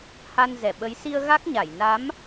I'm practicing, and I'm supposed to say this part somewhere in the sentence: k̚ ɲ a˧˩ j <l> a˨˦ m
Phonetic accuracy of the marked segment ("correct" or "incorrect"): incorrect